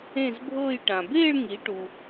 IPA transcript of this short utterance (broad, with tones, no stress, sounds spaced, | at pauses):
ẽ˥˧ z bʱ ɤː˥˧ j ʈ ã˨ b eː˥˧ ɭ ŋ i˨˦ ʈ u˨